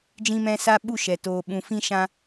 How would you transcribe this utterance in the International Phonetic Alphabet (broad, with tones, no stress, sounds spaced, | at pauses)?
d͡ʒ ĩ˧ m ɛ̃˧ s a˧ ɓ u˦˨ ʃ ɛ˨ t oː˨ ɓ ũ˨ f ĩ˧ ʃ ã˧